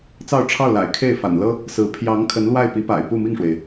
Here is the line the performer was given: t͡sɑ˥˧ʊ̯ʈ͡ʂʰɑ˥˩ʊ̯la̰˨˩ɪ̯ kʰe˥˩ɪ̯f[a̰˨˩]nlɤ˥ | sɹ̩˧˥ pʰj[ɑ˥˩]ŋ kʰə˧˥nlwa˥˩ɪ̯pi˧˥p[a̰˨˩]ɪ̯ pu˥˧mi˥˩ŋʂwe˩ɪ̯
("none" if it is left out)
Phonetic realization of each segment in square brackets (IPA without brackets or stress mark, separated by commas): a̰˨˩, ɑ˧˥, a̰˨˩